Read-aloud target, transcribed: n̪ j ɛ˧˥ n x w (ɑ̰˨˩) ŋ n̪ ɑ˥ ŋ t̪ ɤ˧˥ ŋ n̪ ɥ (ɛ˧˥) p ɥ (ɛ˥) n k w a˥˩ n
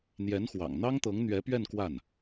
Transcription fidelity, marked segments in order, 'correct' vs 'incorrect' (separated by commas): correct, correct, incorrect